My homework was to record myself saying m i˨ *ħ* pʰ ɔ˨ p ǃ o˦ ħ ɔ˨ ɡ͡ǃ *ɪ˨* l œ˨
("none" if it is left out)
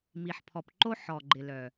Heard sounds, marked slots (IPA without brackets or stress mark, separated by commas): ħ, ɪ˨